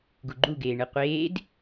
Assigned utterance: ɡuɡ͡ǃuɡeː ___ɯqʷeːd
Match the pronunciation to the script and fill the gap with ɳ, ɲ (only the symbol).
ɳ